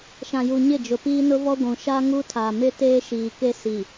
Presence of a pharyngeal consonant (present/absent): absent